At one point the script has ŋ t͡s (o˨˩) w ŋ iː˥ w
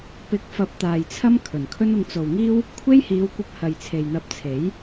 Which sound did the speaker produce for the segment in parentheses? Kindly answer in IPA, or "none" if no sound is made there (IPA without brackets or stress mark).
o˨